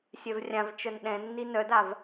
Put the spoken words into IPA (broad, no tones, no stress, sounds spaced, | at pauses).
sʲ œ v rʲ ã v t͡ʃ œ n ɗ ɛ̃ nː i n œ d a v